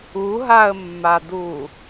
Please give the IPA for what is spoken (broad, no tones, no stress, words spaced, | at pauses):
uɦaə̯mːadu